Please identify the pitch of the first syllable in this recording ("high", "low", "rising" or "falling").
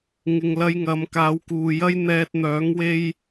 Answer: low